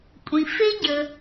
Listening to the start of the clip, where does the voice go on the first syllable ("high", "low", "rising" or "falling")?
low